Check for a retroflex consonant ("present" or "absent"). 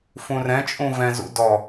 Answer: absent